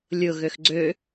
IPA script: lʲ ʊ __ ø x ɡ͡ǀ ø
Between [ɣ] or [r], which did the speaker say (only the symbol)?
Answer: ɣ